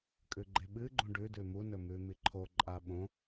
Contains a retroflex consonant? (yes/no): yes